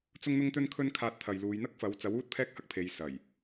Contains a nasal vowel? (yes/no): no